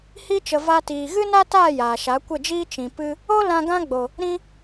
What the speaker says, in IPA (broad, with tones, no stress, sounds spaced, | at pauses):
h i˧ t͡ʃ ə˨ v a˧ t iː˨ ɣ ɨ˦ n a˦ t aː˦˨ j aː˨ ʃ a˨˦ kʷ ə˦˨ d͡ʒ iː˦ t͡ʃ ĩ˨ p ɨ˦ | o˦ l ã˧ ɡ ã˦ ɡ͡b o˨ | ɾ ĩ˧